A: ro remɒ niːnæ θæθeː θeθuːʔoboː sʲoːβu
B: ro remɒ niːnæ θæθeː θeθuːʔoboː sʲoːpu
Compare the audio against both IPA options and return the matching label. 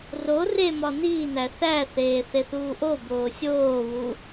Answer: A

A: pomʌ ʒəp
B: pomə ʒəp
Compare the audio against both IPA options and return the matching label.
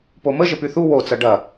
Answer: B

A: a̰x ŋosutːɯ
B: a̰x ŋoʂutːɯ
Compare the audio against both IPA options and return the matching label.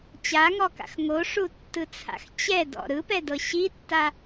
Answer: B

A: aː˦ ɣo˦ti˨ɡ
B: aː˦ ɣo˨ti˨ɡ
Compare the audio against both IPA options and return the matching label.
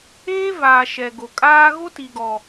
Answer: A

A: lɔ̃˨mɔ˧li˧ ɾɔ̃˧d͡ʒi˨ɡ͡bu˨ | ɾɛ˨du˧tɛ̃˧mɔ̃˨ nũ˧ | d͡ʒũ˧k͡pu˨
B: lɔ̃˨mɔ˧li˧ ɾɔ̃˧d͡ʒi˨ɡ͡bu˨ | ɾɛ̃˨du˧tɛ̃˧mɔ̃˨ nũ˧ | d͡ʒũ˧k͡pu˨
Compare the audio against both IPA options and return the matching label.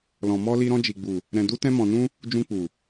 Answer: B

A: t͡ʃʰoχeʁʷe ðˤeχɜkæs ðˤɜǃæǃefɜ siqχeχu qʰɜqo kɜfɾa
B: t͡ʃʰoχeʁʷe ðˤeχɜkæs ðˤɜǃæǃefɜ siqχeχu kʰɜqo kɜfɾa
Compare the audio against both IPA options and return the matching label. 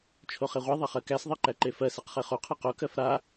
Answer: A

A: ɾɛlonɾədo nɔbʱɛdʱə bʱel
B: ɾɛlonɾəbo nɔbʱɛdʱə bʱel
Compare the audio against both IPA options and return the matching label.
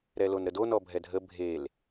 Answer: A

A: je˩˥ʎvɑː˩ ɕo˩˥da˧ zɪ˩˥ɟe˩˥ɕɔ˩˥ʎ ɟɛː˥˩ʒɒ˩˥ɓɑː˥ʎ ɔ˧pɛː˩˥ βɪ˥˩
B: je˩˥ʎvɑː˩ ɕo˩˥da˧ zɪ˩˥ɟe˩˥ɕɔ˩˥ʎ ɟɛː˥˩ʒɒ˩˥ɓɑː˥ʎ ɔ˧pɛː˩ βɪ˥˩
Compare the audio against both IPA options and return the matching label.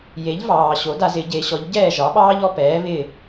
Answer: A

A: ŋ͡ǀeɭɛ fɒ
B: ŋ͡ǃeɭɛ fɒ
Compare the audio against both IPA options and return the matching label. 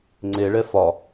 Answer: A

